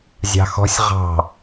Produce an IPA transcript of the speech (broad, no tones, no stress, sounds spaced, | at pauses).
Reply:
zʲ ɑ̤ x ɔ̤ sʲ ʁ ɑ̤